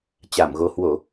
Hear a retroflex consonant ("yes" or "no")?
no